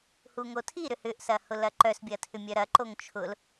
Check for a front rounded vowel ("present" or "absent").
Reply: present